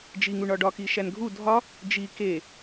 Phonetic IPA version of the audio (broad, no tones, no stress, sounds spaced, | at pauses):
d͡ʒ i ŋ u ɳ ɒ ɖ ɒ k i ʃ æ n ɡʱ u dʱ ɒ | d͡ʒ i k e